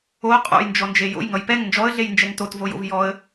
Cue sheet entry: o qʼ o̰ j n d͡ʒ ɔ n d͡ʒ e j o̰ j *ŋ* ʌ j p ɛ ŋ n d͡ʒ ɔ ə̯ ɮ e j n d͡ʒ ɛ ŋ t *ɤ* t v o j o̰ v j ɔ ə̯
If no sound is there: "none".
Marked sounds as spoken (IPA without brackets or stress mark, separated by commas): ŋ, o